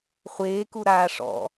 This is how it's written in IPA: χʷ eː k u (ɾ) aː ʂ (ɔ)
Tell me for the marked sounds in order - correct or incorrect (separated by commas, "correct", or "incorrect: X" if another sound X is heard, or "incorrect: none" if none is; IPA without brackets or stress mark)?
correct, incorrect: ɔ̰